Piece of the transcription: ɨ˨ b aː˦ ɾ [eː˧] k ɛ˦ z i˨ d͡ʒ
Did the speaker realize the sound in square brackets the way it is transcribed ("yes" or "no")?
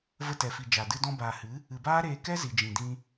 yes